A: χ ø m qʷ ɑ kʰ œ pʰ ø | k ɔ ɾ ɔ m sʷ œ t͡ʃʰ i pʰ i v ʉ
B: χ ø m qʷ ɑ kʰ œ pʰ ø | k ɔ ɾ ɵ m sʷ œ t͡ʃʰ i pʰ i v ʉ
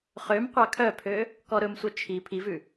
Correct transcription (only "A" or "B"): B